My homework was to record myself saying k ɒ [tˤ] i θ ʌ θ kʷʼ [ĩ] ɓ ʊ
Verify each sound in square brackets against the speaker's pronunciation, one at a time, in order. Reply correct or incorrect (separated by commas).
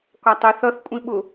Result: correct, correct